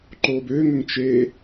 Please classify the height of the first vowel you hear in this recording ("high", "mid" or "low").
mid